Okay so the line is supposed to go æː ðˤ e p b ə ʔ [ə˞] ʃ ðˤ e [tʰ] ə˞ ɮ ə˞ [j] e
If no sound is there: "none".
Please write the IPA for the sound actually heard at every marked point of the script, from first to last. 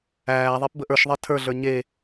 ə˞, tʰ, ɲ

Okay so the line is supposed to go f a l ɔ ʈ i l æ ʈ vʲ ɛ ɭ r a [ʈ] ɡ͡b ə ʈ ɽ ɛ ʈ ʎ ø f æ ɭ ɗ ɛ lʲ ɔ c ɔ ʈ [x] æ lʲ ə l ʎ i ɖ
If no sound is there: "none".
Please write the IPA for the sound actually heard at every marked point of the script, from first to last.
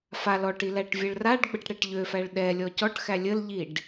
ɖ, x

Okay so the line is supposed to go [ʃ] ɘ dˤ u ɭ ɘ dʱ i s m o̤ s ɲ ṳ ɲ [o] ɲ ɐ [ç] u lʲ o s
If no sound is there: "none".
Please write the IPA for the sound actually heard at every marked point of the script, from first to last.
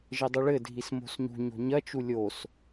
ʒ, o̤, t͡ʃ

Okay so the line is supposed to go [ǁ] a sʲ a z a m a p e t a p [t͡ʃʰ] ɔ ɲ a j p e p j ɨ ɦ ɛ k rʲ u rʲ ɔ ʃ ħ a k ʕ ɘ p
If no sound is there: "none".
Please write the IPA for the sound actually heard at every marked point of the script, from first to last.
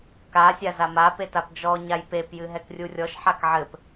k, d͡ʒ

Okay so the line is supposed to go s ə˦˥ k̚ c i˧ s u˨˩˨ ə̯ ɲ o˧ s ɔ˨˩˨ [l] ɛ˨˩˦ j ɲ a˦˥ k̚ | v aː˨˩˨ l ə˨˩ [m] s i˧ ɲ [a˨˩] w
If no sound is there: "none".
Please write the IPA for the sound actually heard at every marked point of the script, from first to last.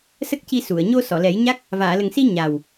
l, ŋ, a˨˩

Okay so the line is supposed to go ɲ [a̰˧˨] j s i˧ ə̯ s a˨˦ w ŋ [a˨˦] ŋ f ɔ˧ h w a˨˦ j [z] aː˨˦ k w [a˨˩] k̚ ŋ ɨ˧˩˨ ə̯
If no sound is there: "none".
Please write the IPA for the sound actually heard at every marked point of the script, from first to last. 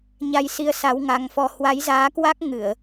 a˧, a˨˦, z, a˦˥

